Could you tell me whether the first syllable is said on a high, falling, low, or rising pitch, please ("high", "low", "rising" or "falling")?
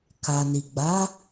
low